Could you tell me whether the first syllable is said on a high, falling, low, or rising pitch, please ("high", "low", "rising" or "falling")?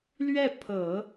falling